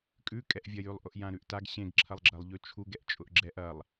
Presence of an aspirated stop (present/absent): present